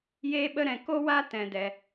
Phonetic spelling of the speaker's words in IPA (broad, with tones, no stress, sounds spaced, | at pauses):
j eː˦ ɓ ə˦ ɾ ɛ̃˧ k o˦ w a˦ t ɛ̃˧ d ɛ˧